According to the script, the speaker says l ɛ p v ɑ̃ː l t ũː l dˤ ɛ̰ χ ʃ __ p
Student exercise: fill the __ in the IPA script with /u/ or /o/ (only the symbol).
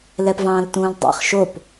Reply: o